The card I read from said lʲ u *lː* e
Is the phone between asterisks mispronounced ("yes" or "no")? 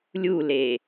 yes